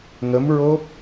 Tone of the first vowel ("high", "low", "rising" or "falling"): rising